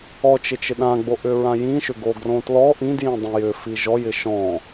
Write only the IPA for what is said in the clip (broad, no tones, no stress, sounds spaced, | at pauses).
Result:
ɔ t͡ʃ ɪ t͡ʃ ɪ ɗ ã ɡ͡b o ʔ ʏ ɹ ã j ĩ ʃ ʏ ɡ o ɡ r õ t l ɔ ʔ ĩ d j ĩ dˤ ĩ j ʏ f i ʒ ɔ j ɪ ʃ ɔ̃